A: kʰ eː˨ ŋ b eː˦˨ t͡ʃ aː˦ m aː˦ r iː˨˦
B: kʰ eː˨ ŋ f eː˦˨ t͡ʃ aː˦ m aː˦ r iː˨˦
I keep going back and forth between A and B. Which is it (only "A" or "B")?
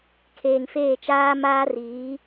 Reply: B